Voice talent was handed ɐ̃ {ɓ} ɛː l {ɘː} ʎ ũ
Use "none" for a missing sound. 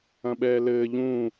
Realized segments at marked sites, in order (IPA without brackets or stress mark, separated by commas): ɓ, ɘː